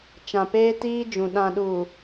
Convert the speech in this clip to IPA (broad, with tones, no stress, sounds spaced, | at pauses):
t͡ʃ ã˨ p eː˦ t iː˦ d͡ʒ ũ˨ ɗ ã˨ ɗ uː˨